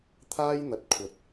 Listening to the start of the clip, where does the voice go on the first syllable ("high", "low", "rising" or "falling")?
high